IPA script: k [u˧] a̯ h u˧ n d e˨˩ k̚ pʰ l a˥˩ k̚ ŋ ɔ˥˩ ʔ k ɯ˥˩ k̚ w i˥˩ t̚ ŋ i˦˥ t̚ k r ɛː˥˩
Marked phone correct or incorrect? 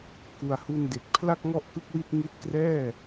incorrect